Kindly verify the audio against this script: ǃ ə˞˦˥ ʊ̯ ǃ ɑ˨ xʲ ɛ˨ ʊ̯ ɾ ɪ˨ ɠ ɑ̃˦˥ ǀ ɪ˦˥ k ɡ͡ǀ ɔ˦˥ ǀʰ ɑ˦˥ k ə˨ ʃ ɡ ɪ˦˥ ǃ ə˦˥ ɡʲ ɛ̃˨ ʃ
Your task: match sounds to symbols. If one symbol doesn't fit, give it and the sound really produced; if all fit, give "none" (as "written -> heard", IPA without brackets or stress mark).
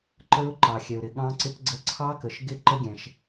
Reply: ɔ˦˥ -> ə˦˥